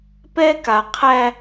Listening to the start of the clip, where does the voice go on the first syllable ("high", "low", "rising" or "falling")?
high